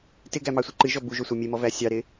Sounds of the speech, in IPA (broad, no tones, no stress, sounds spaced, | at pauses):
t ɪ ɡ æ m ɑ sʷ e ǃ ɨ ʒ ɔ b u ʒ o sʷ ɑ mʲ e m ɔ v æ sʲ ɑ ɾ ɪ